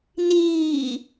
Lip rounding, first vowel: unrounded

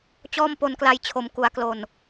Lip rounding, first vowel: rounded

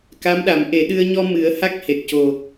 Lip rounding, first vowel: unrounded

